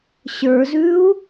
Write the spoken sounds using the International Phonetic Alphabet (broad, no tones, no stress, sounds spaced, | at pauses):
ɕ ə˞ z ʉ u̯